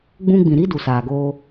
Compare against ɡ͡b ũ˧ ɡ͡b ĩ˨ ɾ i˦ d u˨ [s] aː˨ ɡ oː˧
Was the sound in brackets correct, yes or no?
yes